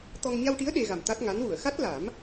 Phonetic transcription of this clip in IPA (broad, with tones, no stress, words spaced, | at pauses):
t̪ɔ˧ŋ ɲa˧wʈi˧˥ə̯ ɗe˧ ɣa˨˩m t̪a˦˥t̚ŋa˧˥n wu˨˩˨ə̯xa˦˥t̚la˨˩˦m